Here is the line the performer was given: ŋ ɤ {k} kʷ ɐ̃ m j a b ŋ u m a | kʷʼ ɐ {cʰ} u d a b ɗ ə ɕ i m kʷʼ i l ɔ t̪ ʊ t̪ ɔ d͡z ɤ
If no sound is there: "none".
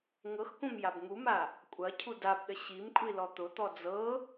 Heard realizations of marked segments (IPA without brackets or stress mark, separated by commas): x, cʰ